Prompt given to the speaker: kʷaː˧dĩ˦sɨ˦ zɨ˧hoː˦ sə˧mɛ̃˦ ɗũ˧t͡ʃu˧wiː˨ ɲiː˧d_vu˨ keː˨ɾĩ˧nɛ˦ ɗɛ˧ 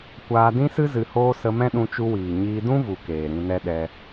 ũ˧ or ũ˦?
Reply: ũ˦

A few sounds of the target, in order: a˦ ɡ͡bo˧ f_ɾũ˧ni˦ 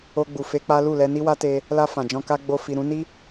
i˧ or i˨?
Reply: i˨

